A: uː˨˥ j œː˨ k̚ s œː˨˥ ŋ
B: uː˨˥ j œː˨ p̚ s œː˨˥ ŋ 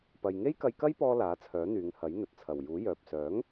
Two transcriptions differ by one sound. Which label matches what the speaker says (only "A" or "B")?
B